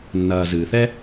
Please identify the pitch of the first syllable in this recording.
low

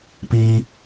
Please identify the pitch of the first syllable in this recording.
high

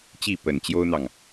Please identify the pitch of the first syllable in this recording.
falling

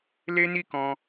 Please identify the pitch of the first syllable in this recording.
high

